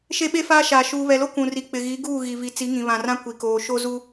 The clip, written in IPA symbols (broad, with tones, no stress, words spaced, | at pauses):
ʃe˦ɓe˦faː˦ʃaː˨ ʃuː˨βɛ˨lo˦ kũ˨ ri˨k͡pɪ˨ ɣi˨˦ɡuː˦˨ ɣi˨vi˨ t͡si˨˦ŋĩ˨βã˨rã˦ kʷi˨koː˨ ʃo˦zu˦